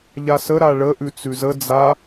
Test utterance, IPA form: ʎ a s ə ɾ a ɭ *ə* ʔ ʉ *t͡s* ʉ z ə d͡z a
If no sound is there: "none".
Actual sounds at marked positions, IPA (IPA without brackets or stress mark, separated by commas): ə, t͡s